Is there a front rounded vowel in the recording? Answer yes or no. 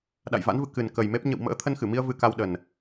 no